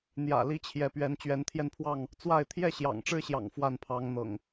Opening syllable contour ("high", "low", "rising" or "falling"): low